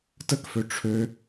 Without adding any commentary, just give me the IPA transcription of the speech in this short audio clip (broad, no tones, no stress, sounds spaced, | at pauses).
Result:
t ə k f ø ʈ͡ʂʰ ø